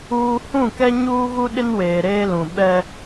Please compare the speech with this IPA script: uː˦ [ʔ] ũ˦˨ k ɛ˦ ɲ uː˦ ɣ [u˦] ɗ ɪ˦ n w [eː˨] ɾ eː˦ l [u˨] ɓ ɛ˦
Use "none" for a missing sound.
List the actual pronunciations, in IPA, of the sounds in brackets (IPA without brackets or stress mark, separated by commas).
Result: h, u˦, eː˨, ũ˨